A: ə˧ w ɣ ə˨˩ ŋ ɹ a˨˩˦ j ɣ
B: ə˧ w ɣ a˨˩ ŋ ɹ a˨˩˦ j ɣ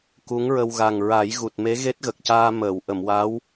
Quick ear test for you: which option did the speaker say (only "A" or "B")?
B